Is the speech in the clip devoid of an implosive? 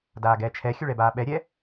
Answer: no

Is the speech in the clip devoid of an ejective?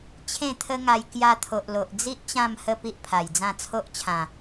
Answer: yes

